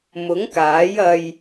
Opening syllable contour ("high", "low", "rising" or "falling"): rising